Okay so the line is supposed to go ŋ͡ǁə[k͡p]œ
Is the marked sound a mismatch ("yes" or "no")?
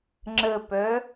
yes